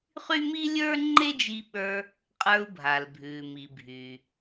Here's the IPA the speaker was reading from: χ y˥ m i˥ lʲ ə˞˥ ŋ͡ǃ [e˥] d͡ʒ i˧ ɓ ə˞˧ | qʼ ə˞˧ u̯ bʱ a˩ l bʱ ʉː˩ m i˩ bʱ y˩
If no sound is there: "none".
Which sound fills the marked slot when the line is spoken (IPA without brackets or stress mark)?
e˥